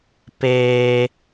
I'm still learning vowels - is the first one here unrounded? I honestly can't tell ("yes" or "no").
yes